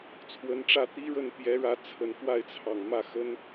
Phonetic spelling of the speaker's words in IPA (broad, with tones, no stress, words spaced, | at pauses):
t͡sʰwə˧˥nʈ͡ʂä˥˩t̪i˥ɻə˥˩n pjɛ˧˥ɻä˧˥t͡sʰə˨˩n fwa˥˩ɪ̯t͡sʰɑ˨˩ŋ mä˥˩xə˥n